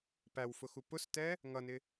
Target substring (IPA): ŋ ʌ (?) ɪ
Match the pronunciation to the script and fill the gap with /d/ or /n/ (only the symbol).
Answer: n